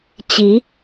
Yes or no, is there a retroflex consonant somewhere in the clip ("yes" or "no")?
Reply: no